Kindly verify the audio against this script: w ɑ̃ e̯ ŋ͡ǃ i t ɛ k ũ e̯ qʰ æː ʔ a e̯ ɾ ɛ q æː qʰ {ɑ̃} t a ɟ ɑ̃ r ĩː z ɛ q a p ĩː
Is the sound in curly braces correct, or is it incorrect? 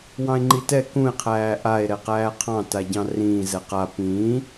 correct